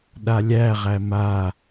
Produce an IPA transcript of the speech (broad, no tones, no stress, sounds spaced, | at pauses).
ɗ a lʲ æ ʁ æ m a